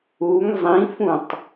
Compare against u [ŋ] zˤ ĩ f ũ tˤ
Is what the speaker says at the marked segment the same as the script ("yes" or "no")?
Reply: yes